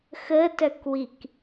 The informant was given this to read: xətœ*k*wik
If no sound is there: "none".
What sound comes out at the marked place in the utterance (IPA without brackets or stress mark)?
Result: k